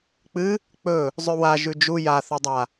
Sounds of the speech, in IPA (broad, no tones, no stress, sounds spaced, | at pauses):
k͡p ɨ | k͡p ɵ | zˤ ʉ w a ʒ ʉ d͡ʒ u j a θ o dˤ a